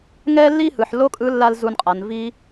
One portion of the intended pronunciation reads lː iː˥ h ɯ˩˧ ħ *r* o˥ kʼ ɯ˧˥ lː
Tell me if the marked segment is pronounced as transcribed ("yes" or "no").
no